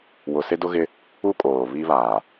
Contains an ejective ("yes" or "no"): yes